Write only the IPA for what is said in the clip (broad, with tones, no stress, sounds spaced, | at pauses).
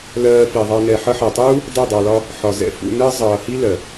l ɜː˧ f i˨ ðˤ ɑ˧ n ɛ˨ ħ ʌ˧ ħ ɜ˨ tˤ uː˦ | dˤ u˦˨ dˤ ɑ˧ l ɒ˦ | ħ ɒ˨ z ɛ̰˦ f ṵ˧ n ɜ˦ zˤ ʌː˨ h i˦ l ɜ˨